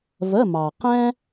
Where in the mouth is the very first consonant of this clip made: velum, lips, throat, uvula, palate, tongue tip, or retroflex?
lips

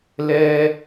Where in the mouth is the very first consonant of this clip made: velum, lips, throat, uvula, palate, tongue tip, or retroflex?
tongue tip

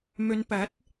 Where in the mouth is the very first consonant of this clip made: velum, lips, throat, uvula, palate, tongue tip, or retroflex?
lips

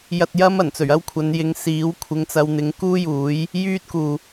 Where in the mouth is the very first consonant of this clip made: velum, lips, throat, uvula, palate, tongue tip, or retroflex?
palate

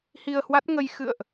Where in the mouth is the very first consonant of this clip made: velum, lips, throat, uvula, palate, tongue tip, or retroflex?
throat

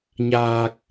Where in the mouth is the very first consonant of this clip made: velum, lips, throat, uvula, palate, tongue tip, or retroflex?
palate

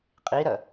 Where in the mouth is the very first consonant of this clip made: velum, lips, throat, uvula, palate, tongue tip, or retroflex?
uvula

